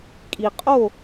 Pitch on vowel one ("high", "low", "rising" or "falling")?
low